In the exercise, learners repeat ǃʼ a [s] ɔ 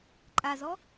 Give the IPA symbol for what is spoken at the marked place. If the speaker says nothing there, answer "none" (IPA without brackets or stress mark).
z